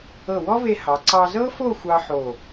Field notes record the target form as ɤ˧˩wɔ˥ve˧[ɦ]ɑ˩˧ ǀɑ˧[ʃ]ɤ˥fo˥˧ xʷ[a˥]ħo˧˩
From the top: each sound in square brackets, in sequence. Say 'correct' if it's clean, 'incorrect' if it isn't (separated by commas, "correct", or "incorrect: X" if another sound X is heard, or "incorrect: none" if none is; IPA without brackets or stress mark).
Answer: incorrect: h, incorrect: z, incorrect: ɑ˥